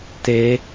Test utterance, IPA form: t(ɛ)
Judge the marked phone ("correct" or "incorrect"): incorrect